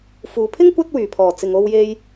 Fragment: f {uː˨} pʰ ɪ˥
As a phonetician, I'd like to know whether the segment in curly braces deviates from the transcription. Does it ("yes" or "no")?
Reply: no